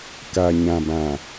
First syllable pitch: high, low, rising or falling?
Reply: low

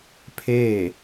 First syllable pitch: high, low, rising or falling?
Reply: falling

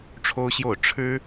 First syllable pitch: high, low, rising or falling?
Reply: high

